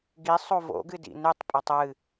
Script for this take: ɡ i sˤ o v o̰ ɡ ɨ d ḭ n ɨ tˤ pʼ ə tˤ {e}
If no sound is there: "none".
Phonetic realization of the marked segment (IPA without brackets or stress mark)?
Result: ɨ